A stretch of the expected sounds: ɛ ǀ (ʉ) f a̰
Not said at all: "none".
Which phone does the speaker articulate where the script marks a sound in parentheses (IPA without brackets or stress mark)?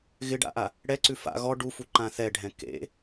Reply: ʉ